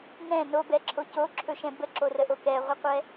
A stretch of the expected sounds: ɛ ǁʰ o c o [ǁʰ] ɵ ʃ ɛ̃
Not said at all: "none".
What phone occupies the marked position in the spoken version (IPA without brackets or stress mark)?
ǁʰ